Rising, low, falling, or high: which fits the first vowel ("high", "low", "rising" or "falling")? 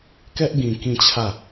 high